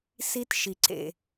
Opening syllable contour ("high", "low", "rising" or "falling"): high